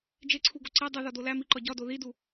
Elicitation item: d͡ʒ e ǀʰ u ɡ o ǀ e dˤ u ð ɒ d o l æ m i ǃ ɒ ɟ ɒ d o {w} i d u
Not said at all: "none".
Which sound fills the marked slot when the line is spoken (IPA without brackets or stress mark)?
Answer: ð